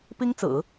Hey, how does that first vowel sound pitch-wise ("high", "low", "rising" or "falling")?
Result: high